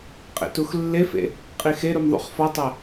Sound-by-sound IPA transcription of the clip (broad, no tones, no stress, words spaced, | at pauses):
qʼḛtuxlːefḛ | qʼixeɾum ðˤṵχfɒtˤæ